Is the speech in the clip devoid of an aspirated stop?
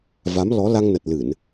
yes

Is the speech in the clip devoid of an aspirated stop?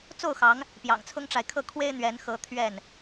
no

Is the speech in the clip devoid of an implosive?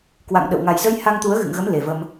no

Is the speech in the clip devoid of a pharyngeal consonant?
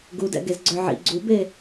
no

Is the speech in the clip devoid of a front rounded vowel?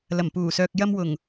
no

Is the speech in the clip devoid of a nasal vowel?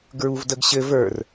yes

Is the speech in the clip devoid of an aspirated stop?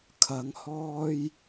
no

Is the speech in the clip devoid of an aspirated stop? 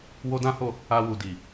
yes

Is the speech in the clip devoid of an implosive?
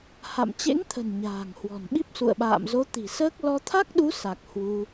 no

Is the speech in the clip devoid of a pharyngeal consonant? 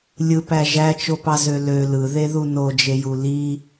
yes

